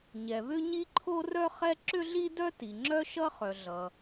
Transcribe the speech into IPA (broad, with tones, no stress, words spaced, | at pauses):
ɲɛ˩βʏ˥ɲi˥ ǃʰo˥rœ˥χɛ˥ ǁʏ˥ɮi˥dœ˥ ti˩ŋ͡ǁœ˥ʃʌ˥χœ˩ ɮʌ˩